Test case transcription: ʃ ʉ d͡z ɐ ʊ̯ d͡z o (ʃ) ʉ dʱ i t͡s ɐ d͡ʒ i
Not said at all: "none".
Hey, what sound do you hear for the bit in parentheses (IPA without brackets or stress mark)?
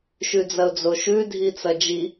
ʃ